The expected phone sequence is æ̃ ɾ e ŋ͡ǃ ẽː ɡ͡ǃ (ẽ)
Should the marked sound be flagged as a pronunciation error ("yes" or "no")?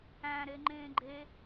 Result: yes